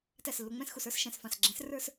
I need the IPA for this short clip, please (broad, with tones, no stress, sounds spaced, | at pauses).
t æ˧˩ s lː ʊ˩˧˩ ŋ͡m ɛ̃˥˨ s x u˧˩ s ə˞˨˥ s ʃ ɛ̃˩˧˩ s f ɑ̃˧˩ s ɡ͡ǁ ɛ̃˨˥ s r ə˞˥˨ s